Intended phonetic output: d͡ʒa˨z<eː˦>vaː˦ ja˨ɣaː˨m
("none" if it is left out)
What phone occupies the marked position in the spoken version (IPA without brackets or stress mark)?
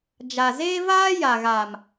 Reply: eː˦